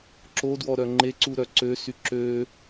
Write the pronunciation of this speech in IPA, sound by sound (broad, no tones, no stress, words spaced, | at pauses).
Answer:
ǁodwɔ ɾœŋ͡ǃeǀu ɾœǀøsy ǁø